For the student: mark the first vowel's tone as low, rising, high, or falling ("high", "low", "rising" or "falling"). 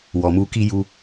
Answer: low